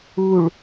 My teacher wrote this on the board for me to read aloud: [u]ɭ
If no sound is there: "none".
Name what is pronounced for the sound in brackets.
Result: u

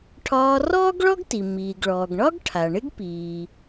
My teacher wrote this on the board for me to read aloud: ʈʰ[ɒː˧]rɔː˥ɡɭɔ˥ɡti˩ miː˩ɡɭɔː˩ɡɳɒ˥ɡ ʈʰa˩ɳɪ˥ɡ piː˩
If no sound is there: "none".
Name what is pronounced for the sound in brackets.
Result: ɒː˧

